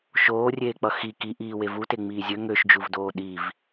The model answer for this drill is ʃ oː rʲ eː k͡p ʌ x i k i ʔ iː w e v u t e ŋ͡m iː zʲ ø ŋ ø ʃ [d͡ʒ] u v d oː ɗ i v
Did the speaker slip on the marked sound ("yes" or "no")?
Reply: no